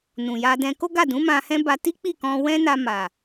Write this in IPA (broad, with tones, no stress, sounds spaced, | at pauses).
n ũ˨ j a˧ d ɛ̃˧ k o˦ ɡ a˦˨ d ũ˨˦ m ã˧ h ɛ̃˦ b a˧ t i˦ k͡p i˦˨ k ɔ̃˧ w ɛ̃˦ n a˧ m a˨